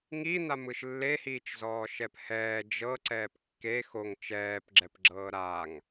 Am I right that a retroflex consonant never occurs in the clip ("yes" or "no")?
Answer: yes